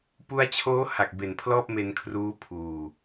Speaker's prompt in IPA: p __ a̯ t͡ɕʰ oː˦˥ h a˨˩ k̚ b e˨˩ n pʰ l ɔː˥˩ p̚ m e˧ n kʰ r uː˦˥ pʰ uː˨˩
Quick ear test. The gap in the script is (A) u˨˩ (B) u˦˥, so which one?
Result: B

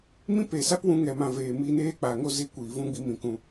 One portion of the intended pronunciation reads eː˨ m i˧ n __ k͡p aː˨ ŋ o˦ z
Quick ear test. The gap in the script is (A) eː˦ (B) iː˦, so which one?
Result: A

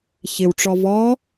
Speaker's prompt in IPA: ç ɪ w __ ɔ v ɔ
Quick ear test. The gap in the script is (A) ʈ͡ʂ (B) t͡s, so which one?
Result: A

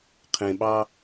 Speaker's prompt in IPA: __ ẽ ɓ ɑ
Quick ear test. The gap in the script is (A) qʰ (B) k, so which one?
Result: A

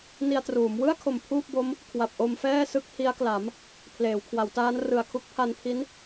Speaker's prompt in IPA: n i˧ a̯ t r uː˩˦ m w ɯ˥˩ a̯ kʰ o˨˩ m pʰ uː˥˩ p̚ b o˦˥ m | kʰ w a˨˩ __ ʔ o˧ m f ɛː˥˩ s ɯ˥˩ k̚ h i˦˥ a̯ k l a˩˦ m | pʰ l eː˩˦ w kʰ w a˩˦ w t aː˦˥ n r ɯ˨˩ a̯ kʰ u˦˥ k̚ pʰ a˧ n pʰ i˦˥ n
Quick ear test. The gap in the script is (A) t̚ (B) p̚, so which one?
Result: B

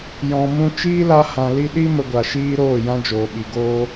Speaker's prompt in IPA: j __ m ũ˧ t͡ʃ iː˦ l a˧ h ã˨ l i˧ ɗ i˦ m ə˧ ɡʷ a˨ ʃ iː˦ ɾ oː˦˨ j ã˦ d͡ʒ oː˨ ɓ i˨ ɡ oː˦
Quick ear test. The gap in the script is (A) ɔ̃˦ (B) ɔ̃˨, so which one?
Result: B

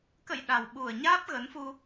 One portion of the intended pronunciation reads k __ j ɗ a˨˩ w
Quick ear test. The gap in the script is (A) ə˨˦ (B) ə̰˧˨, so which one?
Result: B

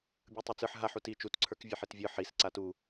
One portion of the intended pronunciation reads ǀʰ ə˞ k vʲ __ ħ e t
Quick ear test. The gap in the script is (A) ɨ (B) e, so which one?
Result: B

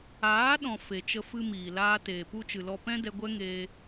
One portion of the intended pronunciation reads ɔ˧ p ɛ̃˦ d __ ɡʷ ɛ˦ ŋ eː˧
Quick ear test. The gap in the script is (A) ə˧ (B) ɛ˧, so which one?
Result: B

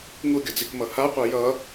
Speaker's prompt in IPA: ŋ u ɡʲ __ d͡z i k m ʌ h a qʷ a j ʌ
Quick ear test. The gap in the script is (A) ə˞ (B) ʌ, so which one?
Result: B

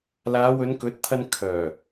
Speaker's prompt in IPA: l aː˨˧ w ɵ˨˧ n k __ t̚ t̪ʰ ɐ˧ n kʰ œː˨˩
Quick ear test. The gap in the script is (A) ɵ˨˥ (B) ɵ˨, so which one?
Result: A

